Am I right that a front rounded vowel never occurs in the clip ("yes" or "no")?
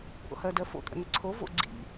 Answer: yes